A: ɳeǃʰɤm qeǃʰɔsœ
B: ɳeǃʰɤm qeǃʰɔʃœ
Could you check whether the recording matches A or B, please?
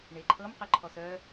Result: A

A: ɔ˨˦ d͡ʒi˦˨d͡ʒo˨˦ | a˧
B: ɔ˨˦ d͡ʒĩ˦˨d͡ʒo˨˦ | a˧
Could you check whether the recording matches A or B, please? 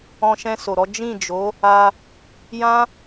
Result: B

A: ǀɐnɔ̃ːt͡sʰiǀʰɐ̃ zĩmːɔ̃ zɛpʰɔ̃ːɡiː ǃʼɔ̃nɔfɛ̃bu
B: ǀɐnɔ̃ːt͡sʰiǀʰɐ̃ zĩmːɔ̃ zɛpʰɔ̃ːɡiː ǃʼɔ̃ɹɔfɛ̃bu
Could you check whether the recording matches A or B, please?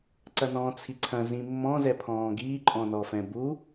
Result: A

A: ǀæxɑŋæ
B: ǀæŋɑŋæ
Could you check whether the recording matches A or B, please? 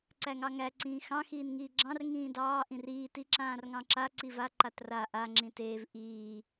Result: B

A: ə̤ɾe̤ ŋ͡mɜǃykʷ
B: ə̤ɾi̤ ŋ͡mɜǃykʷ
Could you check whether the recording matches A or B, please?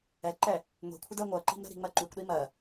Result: B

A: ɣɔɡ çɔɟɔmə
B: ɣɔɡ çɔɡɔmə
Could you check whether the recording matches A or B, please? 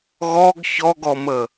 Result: B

